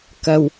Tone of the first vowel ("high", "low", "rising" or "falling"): low